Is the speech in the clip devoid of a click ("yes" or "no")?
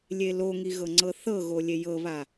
no